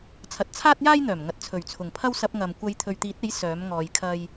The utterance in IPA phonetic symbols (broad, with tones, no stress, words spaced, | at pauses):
t͡sʰɐ˨t̚t͡sʰaː˥t̚jaː˥jn̪œː˨˩m ŋɐ˨t̚t͡sʰɵ˨˩ɥt͡sʰʊ˨˩ŋpʰɐ˥w sɐ˧p̚ŋɐ˨m kʷɐ˨˧jt̪ʰɵ˨ɥt̪iː˨˥t̚e˨˥j sœː˨˥mŋɔː˨˧jkʰɐ˥j